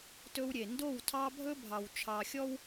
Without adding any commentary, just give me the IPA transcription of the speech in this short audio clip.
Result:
t ɵ˦ w ɾʲ e˨ n d o˦˨ w tʰ ɑ˦ bʱ ɵ˦ bʱ ɑ˨ w t͡ʃʰ ɑ˨ xʲ ɔ˦ w

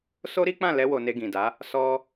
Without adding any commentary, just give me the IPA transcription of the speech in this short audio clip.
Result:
s o˦ ɾ i˦ k͡p ã˦˨ l ɛ˧ w o˨ n e˧ ɡ ĩ˨ d a˨˦ | s ɔ˧

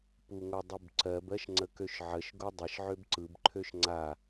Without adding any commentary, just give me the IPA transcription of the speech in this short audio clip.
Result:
p u ŋ o dˤ u b ǀ ɜ b ɜ ʃ ŋ͡ǀ ə k ø ʃ ʕ ə ʃ ɡ o dˤ ɪ ʃ ʕ ø b ǀ ɯ b ǃʰ ø ʃ ŋ͡ǀ a

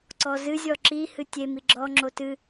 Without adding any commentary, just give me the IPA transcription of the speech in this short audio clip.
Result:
ǀ ɔ z ɨ zʲ ɔ ǁ i h ɨ tʲ e m i ɡ͡ǁ ɔ ŋ͡ǁ o t ɨ

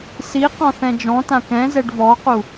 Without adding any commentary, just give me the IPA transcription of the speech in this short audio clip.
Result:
s i q ɔ̃ θ ɛ̃ d͡ʒ ɔ̃ t ã k ɛ̃ z ɛ ɖ v ɔ q u

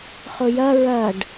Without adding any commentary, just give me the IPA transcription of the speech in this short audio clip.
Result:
χ ʊ j ɐ ɹ ɐ ɖ

